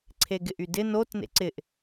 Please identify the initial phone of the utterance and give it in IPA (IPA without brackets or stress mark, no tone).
ǀʰ